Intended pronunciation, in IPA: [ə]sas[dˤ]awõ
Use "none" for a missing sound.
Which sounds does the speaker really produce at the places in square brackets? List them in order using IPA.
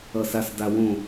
ʌ, d

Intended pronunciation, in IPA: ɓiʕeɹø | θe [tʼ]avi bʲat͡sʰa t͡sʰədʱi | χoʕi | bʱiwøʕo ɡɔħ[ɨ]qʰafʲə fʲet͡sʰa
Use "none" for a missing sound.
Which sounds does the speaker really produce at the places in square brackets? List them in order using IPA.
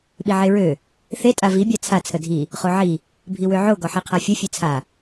tʼ, i

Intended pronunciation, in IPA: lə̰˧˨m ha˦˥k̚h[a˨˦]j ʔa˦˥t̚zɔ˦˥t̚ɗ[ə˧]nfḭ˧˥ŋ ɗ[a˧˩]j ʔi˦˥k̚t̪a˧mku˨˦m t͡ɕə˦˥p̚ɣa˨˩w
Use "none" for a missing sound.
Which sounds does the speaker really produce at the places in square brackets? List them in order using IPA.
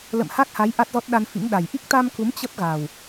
a˨˦, a˧, a˨˩

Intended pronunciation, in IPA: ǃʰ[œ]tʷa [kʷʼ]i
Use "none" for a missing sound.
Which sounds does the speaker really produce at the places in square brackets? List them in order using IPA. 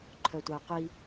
œ, qʷ

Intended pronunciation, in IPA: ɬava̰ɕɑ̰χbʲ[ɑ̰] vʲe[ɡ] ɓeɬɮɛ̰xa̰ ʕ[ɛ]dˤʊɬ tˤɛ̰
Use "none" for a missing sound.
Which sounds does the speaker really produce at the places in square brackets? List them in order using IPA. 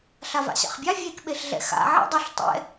ɑ, k, ɛ̰

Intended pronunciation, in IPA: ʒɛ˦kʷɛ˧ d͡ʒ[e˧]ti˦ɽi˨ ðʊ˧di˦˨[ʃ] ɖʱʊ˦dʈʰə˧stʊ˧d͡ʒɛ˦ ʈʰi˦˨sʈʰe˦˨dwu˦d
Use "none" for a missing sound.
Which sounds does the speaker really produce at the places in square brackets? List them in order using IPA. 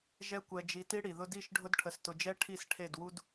i˧, ʃ

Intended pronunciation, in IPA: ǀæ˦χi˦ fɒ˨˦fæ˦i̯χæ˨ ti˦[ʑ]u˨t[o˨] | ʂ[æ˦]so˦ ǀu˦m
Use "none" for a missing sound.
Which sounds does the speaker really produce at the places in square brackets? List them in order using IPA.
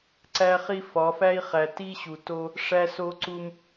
ɕ, o˦, æ˦

